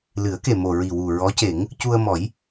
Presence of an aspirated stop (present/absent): absent